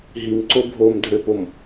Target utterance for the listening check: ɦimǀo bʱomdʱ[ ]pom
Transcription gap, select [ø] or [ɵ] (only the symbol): ø